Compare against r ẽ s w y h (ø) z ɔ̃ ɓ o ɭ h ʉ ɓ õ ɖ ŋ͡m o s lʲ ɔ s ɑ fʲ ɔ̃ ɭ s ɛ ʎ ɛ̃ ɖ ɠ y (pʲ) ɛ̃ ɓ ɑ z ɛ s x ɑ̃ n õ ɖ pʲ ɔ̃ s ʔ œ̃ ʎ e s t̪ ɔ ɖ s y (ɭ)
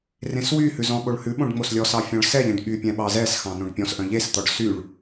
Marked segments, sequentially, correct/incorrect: incorrect, correct, correct

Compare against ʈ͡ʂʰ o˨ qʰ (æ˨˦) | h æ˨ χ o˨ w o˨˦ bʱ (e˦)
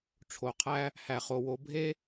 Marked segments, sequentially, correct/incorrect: incorrect, correct

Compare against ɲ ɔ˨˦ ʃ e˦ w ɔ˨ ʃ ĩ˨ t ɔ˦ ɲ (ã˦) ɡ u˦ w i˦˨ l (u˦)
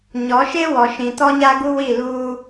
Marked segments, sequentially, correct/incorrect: incorrect, incorrect

